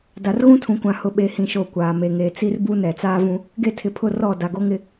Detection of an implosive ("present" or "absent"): present